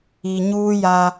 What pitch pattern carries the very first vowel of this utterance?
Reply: low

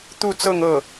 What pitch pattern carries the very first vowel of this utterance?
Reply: falling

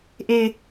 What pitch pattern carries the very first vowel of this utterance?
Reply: low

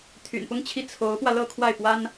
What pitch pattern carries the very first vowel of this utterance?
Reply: low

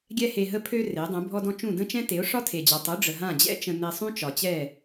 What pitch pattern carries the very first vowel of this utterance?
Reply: high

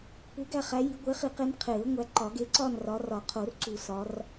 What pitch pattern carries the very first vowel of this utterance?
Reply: rising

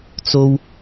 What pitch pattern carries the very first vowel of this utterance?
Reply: high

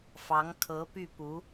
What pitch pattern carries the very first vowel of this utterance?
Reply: rising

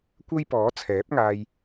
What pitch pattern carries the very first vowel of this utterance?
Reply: high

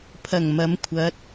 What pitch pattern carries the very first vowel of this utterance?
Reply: low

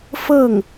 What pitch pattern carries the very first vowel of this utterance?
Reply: falling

